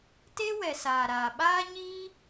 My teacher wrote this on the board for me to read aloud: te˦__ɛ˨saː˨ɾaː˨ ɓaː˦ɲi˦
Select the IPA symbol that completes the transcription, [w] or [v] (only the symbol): w